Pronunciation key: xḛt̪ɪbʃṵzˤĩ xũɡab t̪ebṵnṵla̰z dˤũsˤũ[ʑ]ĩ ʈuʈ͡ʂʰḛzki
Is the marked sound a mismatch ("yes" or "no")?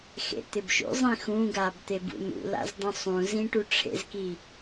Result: yes